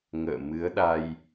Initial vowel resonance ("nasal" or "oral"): oral